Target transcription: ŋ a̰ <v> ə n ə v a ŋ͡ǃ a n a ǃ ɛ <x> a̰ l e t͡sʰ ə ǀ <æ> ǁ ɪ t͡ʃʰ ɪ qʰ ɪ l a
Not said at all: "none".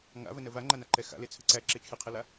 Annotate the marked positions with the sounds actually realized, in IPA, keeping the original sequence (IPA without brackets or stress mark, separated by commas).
v, x, æ